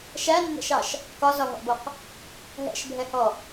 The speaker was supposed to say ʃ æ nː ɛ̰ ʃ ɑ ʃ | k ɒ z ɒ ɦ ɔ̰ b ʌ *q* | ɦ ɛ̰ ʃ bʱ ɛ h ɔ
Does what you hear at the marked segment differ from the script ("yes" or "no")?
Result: no